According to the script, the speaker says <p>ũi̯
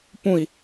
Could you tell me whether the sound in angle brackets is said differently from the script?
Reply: no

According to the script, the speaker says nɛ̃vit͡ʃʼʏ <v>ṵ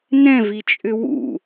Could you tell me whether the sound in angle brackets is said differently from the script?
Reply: yes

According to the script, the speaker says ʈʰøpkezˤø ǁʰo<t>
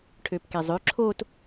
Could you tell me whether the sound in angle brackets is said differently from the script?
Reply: no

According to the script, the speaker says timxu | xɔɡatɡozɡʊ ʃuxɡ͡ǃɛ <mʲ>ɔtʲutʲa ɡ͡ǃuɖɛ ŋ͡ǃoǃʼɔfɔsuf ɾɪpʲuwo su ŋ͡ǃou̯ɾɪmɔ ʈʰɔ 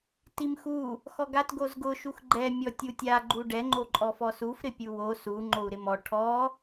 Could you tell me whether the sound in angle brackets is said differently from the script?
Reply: no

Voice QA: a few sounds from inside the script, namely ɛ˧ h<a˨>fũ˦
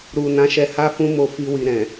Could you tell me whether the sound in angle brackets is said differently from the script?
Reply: yes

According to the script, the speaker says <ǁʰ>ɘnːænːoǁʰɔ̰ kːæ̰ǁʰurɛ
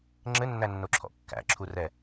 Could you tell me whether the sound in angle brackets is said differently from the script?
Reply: yes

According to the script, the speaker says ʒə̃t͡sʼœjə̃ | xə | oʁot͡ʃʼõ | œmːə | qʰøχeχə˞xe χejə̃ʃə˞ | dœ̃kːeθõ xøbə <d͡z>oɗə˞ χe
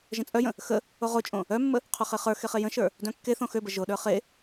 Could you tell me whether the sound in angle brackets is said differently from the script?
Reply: yes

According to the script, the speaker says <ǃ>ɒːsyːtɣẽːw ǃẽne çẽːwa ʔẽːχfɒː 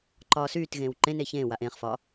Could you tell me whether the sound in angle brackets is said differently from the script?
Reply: no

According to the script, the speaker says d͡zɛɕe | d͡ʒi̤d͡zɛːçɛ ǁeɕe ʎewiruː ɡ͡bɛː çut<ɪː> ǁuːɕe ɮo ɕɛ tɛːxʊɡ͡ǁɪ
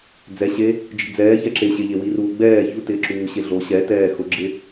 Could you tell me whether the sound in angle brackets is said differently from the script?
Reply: no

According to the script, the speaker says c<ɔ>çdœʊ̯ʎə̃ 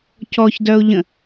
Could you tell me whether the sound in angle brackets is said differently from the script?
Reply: no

